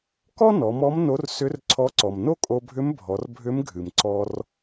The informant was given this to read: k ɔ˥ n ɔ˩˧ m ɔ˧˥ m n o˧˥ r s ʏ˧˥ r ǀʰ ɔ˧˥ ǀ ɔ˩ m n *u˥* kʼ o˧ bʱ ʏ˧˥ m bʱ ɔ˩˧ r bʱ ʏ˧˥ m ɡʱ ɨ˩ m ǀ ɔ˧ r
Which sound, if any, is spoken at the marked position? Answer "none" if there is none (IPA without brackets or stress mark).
o˥